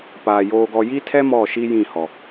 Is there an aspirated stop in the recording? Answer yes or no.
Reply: yes